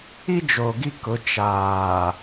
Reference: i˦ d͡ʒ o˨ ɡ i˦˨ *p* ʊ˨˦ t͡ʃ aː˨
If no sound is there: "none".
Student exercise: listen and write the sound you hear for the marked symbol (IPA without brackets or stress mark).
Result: k